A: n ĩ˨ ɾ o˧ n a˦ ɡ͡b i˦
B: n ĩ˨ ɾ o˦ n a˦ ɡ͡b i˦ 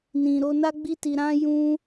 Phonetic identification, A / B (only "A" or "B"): A